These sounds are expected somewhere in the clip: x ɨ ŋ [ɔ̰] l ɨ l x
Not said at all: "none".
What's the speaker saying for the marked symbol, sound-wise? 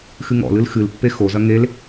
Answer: ɔ̰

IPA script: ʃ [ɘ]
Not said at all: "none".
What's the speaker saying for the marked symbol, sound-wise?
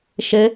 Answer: ɘ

